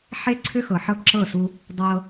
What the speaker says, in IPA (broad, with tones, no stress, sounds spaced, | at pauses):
ħ e˦ ǀʰ ʏ˦ x ɤ˨ ħ ɤ˦ ǁ ɤ˦˨ s u˦ | dˤ ɤ˦